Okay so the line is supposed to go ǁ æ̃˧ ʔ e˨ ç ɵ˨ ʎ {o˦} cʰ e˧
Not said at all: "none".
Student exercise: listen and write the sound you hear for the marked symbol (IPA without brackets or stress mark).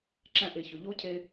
o˦